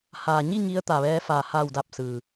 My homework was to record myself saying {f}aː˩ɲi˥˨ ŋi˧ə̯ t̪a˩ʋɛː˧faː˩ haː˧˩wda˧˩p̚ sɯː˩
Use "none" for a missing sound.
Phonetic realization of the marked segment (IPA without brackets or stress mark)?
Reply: h